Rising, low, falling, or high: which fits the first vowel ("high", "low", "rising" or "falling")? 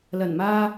low